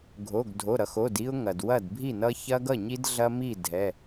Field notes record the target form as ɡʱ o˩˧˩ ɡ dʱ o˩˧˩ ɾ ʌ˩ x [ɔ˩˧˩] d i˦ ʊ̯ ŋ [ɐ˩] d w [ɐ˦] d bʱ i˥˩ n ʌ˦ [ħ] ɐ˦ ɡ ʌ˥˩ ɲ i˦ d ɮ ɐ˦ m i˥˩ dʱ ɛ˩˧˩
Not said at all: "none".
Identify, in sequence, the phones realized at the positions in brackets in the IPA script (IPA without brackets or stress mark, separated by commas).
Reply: o˩˧˩, ɐ˩, ɐ˥˩, ç